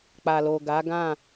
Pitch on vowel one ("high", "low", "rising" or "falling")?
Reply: low